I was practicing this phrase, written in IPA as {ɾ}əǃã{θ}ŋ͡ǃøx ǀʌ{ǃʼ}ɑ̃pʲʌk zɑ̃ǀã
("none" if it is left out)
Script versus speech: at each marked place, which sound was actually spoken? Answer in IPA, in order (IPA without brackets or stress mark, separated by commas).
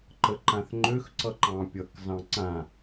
ǃ, θ, ǃ